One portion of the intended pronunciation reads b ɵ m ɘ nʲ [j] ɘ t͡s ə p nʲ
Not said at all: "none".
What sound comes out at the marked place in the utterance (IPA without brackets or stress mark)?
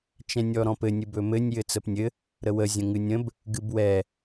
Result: j